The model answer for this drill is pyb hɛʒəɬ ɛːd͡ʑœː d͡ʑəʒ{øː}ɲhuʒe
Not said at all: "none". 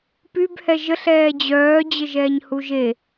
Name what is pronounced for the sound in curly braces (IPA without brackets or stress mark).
ɛː